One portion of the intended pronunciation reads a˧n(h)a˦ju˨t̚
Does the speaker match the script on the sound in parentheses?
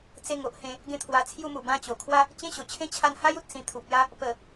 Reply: yes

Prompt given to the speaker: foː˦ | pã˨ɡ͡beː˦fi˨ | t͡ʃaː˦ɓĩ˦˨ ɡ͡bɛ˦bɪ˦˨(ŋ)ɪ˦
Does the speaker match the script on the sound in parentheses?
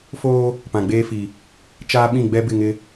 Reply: yes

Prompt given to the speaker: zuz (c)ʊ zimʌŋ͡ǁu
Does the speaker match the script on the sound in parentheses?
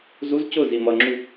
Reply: yes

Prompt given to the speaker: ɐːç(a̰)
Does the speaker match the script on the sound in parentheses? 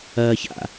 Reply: yes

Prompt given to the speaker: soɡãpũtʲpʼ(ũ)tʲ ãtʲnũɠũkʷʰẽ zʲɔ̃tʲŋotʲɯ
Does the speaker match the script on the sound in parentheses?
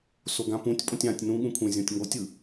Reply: no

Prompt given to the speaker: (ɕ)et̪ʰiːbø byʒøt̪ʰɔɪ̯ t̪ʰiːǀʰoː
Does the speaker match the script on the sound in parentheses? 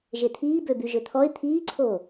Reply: no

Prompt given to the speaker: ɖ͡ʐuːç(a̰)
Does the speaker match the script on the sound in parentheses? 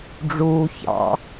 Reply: no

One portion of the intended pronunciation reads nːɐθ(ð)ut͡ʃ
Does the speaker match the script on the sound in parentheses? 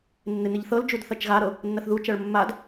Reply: yes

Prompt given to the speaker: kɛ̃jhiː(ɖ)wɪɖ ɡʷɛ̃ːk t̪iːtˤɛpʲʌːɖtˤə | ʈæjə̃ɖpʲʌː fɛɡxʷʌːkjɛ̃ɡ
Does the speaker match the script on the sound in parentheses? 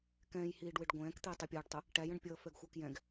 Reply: yes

